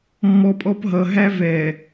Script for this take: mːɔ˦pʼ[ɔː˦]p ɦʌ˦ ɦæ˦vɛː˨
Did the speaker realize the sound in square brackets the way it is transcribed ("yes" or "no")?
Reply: no